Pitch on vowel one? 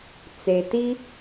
low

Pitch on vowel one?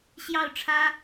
falling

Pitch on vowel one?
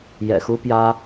low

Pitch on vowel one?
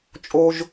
high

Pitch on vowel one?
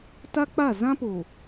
high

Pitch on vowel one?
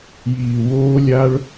low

